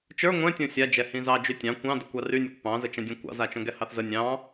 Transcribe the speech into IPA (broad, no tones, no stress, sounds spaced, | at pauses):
t͡ʃ ə˞ ŋʷ ɛ̃ tʲ õ sʲ a d͡ʒ ɛ h ĩ z ɑ d͡ʒ y tʲ ɑ̃ kʷ ɑ̃ d ə kʷ ɑ r y nʲ o kʷ p ɑ̃ z ə t͡ʃ ɛ̃ dʲ õ kʷ ɑ̰ z a t͡ʃ õ ɡ ɛ h ɑ θ z ə nʲ ɑ̃